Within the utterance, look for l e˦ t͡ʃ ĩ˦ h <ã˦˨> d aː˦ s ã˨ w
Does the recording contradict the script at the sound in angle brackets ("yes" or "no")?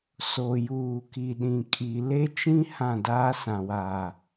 no